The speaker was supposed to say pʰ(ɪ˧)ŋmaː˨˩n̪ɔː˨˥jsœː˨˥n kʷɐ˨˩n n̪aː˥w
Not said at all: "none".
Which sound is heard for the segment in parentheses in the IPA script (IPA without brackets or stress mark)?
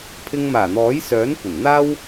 ɪ˧